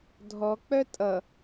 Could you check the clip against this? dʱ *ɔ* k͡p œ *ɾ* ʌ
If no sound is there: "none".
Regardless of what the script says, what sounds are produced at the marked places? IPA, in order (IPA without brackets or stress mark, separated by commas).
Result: ɔ, tʼ